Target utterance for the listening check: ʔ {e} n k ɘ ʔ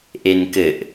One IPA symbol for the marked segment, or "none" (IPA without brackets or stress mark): e